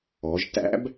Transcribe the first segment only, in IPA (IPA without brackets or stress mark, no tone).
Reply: ɔ